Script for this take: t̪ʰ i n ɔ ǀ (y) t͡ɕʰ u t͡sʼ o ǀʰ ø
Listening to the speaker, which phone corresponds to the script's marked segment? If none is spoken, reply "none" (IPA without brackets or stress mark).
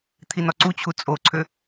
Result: u